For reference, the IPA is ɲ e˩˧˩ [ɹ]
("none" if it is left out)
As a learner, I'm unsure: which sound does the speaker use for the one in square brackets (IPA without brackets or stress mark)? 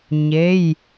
j